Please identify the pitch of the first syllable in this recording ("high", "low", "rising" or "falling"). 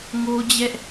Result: high